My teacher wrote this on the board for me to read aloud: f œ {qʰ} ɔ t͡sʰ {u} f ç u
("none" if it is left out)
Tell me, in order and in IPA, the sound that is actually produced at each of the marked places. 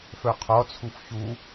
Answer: qʰ, u

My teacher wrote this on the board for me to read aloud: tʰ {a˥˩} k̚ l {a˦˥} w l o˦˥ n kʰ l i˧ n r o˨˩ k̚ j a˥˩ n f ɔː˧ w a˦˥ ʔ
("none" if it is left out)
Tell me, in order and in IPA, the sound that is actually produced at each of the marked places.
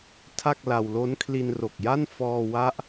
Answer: a˥˩, a˧

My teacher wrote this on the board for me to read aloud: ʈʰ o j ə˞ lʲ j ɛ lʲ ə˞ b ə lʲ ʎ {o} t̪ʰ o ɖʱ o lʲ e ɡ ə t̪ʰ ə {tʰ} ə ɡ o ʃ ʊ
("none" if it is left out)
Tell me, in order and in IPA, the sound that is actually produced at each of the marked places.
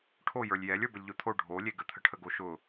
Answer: o, ʈʰ

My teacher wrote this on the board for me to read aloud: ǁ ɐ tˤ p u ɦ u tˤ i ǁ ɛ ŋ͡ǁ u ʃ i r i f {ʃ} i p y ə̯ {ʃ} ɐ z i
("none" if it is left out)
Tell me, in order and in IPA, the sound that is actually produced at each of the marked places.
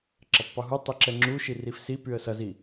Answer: s, s

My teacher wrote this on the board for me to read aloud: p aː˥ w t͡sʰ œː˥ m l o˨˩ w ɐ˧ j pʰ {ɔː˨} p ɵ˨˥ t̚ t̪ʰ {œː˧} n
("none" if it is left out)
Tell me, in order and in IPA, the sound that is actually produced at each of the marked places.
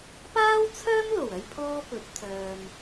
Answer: ɔː˥, œː˨

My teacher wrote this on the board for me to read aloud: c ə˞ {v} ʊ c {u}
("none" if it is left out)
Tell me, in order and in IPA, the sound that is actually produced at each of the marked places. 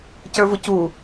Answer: v, u

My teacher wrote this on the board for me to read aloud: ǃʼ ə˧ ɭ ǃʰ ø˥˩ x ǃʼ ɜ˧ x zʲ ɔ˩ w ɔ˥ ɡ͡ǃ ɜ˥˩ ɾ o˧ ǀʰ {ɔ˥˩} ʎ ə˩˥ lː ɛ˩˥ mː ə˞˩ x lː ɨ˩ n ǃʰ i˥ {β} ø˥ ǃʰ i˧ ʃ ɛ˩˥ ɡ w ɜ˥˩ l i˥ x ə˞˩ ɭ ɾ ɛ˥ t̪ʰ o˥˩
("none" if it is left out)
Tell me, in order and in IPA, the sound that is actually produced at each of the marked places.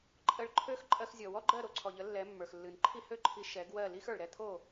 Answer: ɔ˩, h

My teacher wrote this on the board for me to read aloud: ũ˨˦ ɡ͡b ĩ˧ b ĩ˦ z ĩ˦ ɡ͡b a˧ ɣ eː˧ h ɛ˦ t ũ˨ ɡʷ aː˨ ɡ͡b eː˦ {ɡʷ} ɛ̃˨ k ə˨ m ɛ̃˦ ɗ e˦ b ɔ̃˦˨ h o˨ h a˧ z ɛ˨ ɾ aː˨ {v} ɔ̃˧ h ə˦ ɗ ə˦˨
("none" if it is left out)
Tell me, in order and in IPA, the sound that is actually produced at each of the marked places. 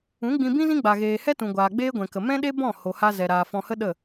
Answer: ɡʷ, f

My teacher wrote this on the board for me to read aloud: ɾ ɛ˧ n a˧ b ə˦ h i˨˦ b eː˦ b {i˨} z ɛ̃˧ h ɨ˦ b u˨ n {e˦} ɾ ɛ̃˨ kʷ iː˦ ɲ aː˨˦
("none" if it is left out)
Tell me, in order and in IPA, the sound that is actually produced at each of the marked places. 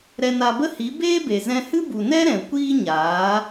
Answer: e˨, ɛ˦

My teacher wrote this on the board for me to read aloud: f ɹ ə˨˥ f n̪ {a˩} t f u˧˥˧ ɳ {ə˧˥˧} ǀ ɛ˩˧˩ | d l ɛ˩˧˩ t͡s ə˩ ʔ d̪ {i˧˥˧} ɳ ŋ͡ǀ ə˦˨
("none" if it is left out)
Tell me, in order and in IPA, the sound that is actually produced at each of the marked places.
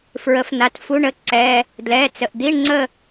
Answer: a˨˥, ə˦˥, i˧˥˧

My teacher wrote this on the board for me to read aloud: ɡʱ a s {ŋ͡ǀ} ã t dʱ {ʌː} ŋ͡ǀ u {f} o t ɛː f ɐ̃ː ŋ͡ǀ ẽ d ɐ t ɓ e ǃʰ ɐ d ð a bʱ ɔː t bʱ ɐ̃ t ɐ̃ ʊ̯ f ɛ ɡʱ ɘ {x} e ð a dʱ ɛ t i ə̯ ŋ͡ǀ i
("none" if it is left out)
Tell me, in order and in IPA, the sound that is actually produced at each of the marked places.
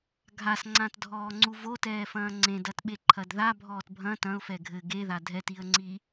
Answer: ŋ͡ǀ, ɔː, v, ɡ

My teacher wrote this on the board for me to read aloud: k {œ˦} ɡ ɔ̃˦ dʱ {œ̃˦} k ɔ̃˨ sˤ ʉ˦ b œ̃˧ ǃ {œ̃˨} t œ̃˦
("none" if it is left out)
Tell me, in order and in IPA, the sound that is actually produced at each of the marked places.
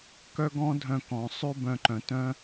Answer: œ˦, œ̃˧, œ̃˨

